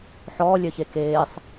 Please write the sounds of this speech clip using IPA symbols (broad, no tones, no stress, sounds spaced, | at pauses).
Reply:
ħ ɔː lʲ œ ç e k eː sˤ